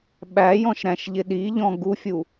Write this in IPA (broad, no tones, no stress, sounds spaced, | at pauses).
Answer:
ɓ æ j ɔ̃ ʃ ɾ æ̃ ʃ ʎ ɪ ɗ i ʎ ɔ̃ ɡ u fʲ u